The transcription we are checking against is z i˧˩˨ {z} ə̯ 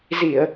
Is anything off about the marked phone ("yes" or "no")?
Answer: yes